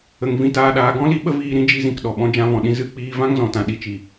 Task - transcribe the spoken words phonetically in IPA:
ə˨ŋ vĩ˧taː˧ɗaː˧ ɡɔ̃˦li˦ɓə˦viː˧ ɾĩ˧d͡ʒi˧zĩ˨k ɗɔ˨ɓɔ̃˦ d͡ʒã˧vɔ̃˨ɗĩ˧ zɨ˦˨k͡piː˧ vã˦ŋzɔ̃˨tã˨ ɗi˨t͡ʃi˨

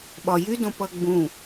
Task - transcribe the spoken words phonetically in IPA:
ɓɒjydõ pʌɡ͡bũ

